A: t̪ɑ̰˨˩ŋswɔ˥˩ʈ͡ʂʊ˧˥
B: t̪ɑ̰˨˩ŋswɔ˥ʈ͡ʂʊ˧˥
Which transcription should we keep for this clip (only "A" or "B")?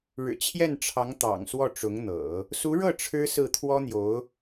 A